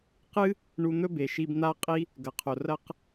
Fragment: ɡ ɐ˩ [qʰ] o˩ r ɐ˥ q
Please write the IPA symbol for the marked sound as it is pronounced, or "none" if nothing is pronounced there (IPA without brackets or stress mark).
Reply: qʰ